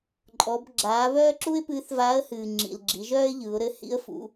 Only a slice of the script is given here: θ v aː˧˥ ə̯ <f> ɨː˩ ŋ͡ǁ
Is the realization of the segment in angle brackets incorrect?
yes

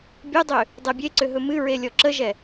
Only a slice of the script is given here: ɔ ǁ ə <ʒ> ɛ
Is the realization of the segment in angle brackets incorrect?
no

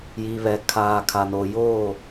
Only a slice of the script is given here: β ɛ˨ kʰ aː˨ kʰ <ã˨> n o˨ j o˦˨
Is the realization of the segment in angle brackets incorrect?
yes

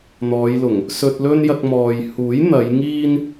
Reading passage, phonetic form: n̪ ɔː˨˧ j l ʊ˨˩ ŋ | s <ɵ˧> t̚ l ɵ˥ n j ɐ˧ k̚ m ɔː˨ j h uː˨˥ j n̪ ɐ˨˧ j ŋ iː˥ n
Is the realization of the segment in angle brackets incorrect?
no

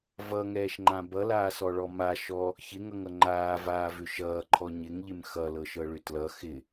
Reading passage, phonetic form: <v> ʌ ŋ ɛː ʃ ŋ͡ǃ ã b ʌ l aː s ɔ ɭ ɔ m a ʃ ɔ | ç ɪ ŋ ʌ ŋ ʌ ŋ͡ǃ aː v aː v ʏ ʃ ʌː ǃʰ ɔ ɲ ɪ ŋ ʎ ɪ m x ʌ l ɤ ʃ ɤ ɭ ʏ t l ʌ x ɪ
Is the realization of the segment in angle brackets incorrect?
no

